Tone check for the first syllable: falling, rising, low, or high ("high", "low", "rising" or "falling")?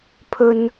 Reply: low